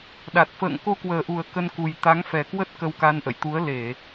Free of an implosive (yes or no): no